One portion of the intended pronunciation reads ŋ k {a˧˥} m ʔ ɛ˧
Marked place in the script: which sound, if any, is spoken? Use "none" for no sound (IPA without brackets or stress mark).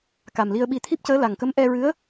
ə˧˥